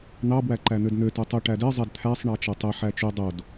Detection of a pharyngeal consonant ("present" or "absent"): present